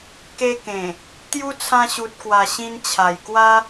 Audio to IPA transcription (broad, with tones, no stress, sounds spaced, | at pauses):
k e˧ k ẽ˨˩ | t̪ j u˦ t͡sʰ ã˧ ɕ u˨ t̚ k w a˨˩ ɕ ĩ˧ n t͡ɕʰ a˨˩ j k w a˦